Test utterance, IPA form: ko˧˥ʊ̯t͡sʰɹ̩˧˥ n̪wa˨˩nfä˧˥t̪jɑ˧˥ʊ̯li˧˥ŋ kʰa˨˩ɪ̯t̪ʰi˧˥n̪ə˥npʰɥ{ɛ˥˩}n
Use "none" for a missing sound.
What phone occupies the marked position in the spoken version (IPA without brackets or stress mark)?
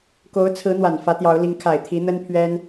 ɛ˥